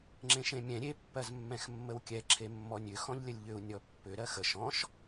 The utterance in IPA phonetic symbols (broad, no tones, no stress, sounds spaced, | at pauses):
ŋ͡ǁ ẽ ʃ ẽ mʲ ɛ̃ ɾʲ e pː ɜ z mː ɛ̃ x mː ə w kʲ ɛ ǁʰ e mː ɔ nʲ ʏ x ɔ̃ ʎ lʲ ə lʲ ʎ ʏ u̯ nʲ ɔ pː ʏ ɾ ɜ x ə ʃ ɔ̃ ʃ